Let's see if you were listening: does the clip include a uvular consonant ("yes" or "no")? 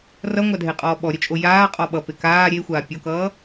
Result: yes